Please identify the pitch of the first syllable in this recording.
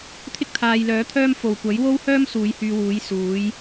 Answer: high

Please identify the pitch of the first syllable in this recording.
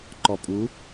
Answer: low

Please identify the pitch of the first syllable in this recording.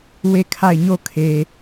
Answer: falling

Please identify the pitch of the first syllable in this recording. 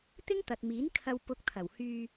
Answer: high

